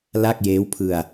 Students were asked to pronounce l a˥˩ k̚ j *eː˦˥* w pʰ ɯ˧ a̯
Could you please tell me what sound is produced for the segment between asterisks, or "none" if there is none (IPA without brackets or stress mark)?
eː˦˥